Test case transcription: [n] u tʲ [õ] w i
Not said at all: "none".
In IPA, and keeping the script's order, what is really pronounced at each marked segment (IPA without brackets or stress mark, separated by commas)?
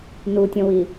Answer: n, õ